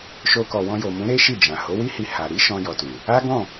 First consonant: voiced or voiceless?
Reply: voiceless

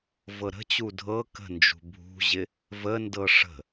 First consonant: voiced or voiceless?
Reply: voiced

